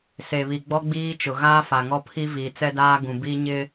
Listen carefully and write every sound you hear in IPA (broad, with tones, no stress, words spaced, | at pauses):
se˨βi˨ ɡ͡bɔ˦ɡ͡biː˦t͡ʃʊ˨ ɣaː˦fa˨ŋɔ˦pʰi˦ viː˨t͡sɛ˦daː˦ ɡũ˨bi˦ ɲɪ˦